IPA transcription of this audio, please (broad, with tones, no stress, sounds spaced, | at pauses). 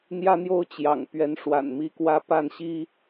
n̪ j ä˦ n̪ j o˦ ʊ̯ t͡ɕ j ɑ̰˨˩ ŋ p ɥ ɛ˨˦ n ʂ w a̰˨˩ n m i˦ k w ä˦ p a˥˨ n ɕ i˦